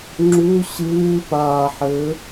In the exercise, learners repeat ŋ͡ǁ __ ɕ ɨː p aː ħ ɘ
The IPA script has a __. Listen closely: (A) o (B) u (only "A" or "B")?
B